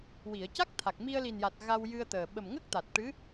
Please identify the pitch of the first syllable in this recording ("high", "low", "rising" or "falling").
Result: low